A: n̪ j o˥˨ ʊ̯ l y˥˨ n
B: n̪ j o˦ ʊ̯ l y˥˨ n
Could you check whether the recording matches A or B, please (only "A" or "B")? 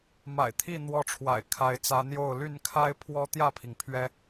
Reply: A